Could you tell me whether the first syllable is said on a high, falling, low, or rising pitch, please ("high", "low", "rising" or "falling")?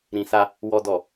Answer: low